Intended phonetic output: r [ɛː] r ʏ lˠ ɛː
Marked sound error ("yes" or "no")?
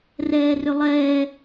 no